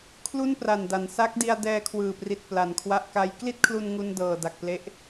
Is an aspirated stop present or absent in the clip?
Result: present